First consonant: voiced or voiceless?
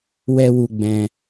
voiced